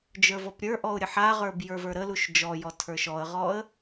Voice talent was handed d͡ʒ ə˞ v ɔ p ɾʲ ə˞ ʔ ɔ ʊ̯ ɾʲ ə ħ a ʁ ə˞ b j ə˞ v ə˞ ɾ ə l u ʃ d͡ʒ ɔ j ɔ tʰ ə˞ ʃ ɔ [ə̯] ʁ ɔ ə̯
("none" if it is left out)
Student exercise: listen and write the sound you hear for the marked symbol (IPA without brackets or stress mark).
ə̯